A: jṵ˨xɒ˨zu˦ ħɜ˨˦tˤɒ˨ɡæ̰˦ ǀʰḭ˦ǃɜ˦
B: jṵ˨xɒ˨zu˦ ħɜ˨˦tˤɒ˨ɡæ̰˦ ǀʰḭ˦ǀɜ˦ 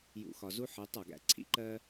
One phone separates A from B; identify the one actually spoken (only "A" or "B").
A